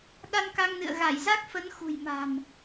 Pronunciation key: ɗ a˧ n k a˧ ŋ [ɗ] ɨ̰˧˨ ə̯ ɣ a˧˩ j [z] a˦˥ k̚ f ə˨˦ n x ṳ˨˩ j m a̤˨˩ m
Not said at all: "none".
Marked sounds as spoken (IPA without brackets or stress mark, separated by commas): n, z